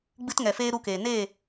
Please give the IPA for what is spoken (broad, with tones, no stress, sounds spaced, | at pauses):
ɡ͡b ɨ˦ t ŋ ɛ˨ f eː˦ ɾ u˦ k eː˨ n eː˦˨